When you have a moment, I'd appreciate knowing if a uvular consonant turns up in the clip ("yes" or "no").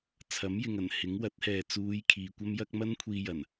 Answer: no